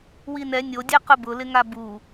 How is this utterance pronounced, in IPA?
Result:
winɛ nʲodʲɛ qʊbʊlɪŋa bu

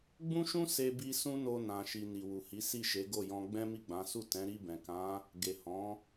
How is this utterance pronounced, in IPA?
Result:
ɡ͡bũ˦ʃũ˦ se˧bi˧ sũ˦no˧ nã˨ʃi˨ ni˨wu˨hi˨˦ si˦˨ʃe˨˦ɡo˦˨jɔ̃˧ ɡ͡bɛ̃˦mi˦˨ɡ͡bã˨˦ su˦˨tɛ̃˨˦ ɾi˧bɛ̃˨kã˨˦ | ɡe˨hɔ̃˨˦

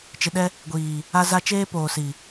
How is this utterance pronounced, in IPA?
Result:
t͡ʃɪ˨ɗɛ˦ | ɡʷiː˨ | a˦za˦ t͡ʃeː˦poː˨si˨

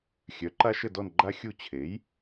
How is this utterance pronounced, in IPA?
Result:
xʲœ˩˥ǃa˦ʃə˦˨dɔ˦˨n ɡ͡ǃa˦xʲu˦˨ t͡ɕʰe˩˥j

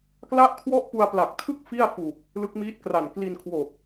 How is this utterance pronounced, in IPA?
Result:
kla˥˩ʔkʰwɔ˥˩ʔ pu˧a̯pla˨˩k̚tʰɯ˥˩k̚ fi˥˩a̯fu˨˩k̚ | lɯ˦˥k̚miː˦˥t̚kra˨˩n kli˧nkʰwo˨˩k̚

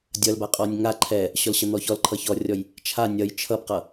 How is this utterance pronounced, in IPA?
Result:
dʲʌlbaqʼɔnʲ ŋa ǃʰɛ | ɕɔlɕʌn̪ɔçɔl ǃʰʌçɔrʲɔj | t͡ʃʰa nʲʌj t͡ʃʰʌbqʌ

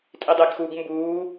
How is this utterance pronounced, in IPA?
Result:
tʼidˤeɡxuɡ mbuː

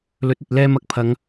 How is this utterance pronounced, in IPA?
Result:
lɵ˨˥t̚ɵ˨t̚ lɛː˧mɐ˨k̚ pʰɐ˨˧ŋ

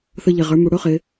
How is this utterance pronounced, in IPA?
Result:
θə˧ʎɪ˩ʁə˞˩˧mu˩ ɽʊ˥χɪ˩˧

